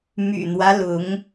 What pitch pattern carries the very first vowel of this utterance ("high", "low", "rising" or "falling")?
low